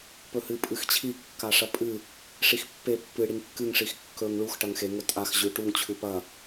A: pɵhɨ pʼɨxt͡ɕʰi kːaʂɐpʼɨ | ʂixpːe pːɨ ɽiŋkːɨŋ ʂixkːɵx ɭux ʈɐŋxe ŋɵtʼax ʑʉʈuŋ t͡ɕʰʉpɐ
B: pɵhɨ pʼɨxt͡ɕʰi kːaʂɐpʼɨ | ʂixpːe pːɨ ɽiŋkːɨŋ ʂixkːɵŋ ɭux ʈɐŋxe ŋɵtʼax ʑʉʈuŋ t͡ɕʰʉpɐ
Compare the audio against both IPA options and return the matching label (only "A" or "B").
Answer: B